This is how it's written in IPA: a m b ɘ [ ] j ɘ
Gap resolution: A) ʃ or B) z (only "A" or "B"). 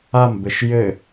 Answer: A